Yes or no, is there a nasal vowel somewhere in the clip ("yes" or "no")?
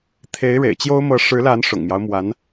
no